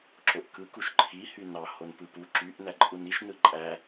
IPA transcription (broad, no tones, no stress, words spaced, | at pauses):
ǁoʔkɯ kuʃǃʰi hynɑ honpɯpu ǁyʔ næǃʼuniʃ nɯǃʼæ